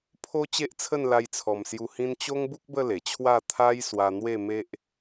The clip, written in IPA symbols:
pʰo˦ t͡ɕe˦ʔt͡sʰə˥˧n la˧jt͡sʰɔ˨˩msju˧ hĩ˦n t͡ɕo˦ŋbu˦k̚ bə˥˧ le˨˩t͡ɕʰwa˥˧ t̪ʰa˦j swa˧n̪we˥˧me˦ʔ

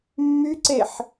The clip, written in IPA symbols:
mːyǀeħ

